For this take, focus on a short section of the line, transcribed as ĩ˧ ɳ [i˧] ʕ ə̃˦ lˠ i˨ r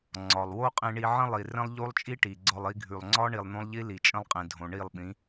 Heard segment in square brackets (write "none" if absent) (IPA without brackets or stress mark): i˧